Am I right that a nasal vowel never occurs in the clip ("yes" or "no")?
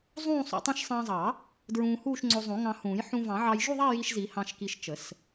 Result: no